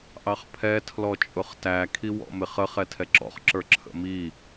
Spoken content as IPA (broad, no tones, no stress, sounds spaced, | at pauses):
ʔ ɑ χ pʰ ɛ tʰ l ɔ t͡ʃʼ ʊ χ t æ kʰ i w ɔ̰ m ɪ χ ə χ ɛ tʰ ɛ ǁ ɔ̰ χ ǁ ə˞ ǁʰ ə̰ m i